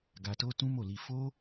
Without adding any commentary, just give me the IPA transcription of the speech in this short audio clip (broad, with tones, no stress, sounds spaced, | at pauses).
ɡ a˧ t o˦ t ũ˦ m o˦˨ l i˧ f o˦